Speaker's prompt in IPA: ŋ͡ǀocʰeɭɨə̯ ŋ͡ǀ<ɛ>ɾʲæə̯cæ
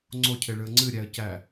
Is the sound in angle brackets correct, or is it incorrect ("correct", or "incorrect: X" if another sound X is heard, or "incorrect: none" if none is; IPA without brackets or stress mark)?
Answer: incorrect: ɨ